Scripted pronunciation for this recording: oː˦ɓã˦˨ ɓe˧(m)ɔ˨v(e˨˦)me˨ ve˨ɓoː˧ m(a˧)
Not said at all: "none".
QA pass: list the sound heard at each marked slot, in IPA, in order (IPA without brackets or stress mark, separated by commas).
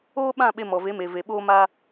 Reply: m, e˨˦, a˧